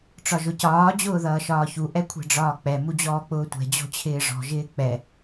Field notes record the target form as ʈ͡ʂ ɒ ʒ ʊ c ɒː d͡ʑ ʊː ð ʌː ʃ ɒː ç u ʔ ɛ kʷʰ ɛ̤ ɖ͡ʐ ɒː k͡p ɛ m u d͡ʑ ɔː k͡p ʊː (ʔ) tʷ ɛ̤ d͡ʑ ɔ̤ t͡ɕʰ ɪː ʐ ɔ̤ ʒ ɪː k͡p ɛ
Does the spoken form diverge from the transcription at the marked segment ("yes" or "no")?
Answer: yes